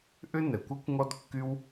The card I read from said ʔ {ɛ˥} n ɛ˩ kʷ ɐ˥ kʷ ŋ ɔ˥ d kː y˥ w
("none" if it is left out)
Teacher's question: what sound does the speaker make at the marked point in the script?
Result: ʏ˥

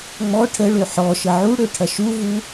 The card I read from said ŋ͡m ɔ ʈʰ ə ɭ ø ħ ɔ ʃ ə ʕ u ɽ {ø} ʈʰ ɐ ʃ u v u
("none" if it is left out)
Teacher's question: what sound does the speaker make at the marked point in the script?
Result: ø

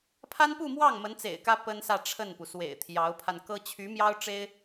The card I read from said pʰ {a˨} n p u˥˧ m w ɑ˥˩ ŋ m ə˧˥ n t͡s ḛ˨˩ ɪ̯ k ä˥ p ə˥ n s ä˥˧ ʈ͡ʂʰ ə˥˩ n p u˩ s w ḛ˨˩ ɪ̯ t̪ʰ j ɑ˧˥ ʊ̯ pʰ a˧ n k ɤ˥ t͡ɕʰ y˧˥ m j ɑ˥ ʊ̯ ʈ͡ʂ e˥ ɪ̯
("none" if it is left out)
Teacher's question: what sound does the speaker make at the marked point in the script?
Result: a˥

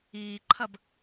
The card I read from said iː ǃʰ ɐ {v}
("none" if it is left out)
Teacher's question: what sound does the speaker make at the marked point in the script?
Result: b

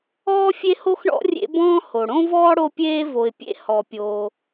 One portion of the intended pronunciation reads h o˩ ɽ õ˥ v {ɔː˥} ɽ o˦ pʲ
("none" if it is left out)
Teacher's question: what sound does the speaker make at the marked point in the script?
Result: ɔː˥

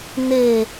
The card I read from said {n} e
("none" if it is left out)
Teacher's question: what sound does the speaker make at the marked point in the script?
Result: n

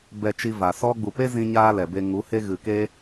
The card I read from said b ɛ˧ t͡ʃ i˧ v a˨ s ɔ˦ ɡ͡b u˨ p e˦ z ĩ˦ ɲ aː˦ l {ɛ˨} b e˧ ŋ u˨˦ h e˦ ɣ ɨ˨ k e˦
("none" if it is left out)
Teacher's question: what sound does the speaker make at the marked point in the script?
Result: ɛ˨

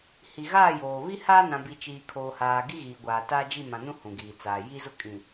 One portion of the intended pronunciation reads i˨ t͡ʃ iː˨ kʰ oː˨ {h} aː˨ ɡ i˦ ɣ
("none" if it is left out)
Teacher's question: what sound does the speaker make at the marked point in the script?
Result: h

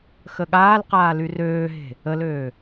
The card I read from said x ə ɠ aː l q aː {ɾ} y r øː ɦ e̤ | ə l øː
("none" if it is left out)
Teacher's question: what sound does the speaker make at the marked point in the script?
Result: l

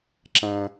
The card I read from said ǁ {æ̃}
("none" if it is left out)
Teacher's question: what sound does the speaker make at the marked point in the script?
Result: æ̃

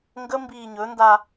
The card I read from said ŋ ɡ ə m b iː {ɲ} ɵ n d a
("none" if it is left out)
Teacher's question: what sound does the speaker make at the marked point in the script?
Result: ɲ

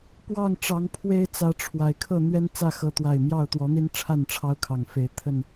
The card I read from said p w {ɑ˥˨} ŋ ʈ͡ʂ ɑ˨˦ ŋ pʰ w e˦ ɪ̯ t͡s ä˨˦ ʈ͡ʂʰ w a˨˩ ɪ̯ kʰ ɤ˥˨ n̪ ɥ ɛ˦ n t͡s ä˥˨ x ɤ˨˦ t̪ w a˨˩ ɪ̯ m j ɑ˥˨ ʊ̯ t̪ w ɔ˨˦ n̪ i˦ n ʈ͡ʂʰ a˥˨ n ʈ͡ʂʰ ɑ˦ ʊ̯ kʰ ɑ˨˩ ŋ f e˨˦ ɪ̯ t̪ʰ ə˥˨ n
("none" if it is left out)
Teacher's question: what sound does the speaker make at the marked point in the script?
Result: ɑ˥˨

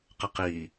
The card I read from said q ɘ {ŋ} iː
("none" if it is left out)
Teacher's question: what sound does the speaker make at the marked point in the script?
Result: q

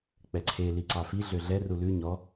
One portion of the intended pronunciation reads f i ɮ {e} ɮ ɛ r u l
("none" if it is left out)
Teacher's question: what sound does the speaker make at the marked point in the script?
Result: ø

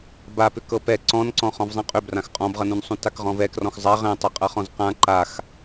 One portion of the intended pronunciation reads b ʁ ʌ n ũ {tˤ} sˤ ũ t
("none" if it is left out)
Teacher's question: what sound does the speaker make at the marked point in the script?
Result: n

